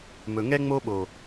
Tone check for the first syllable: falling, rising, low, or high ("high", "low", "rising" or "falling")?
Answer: low